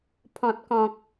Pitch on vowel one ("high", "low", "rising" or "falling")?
low